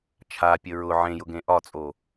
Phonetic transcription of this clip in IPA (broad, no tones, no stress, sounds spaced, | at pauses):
t͡ʃʰ a pʲ ə ɹ ʊ ʕ ẽ j ʊ ɡ ẽ ʔ ɒ t͡sʼ o